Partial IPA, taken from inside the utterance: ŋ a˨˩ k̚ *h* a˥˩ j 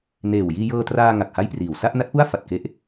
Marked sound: correct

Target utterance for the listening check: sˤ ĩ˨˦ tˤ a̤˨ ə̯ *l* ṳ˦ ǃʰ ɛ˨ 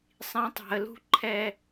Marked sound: correct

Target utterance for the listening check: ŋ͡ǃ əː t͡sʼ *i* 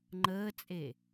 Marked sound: incorrect: e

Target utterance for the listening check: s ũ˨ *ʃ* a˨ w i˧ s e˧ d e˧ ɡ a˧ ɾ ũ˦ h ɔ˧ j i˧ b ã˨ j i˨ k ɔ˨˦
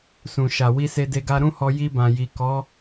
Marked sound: correct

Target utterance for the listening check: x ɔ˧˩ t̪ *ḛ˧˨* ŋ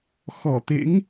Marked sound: incorrect: ḛ˧˥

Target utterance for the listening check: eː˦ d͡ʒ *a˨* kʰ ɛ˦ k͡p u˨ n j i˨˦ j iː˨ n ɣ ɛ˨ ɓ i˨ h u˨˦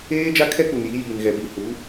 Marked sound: incorrect: a˦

